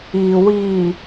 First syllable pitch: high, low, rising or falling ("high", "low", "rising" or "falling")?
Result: low